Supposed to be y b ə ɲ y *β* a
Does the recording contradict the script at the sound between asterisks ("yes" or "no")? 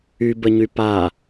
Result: yes